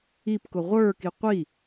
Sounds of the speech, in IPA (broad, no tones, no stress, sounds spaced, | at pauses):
i p k ʊ ʁʷ ə˞ k i qʷ i